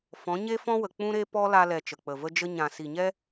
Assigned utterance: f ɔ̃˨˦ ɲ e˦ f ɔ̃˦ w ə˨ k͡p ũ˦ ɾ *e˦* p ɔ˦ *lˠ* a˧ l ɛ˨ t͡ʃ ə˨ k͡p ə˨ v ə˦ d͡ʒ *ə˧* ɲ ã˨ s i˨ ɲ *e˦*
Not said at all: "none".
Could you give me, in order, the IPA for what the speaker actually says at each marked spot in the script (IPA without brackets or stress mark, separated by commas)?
e˦, l, ə˧, ɛ˦